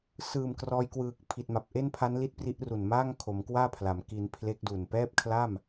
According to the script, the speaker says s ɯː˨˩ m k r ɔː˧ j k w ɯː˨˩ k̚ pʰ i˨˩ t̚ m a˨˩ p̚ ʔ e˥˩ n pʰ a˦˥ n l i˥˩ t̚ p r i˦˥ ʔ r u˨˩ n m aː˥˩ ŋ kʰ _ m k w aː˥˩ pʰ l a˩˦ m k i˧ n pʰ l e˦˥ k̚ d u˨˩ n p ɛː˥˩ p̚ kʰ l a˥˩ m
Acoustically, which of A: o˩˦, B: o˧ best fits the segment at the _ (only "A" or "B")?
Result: A